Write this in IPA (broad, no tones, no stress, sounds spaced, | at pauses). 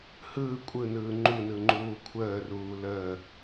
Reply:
h ɯː kʷʼ ɯ n ɯː ŋ͡ǃ u n ɯ ŋ͡ǃ uː kʷʰ əː r uː l əː